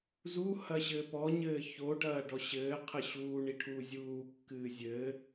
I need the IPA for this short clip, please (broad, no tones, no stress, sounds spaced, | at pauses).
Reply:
z u h ɐ ɕ ɘː p ɔ ɲ ɘː ç o ɖ ɐː ɖ ɔ ɕ ɘː qʰ ɘ ɕ uː ɳ i ʈʰ uː zʲ uː kː ɨː zʲ ɘː